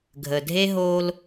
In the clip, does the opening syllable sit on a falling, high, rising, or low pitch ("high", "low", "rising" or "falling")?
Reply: low